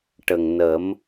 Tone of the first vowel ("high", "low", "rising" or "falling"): low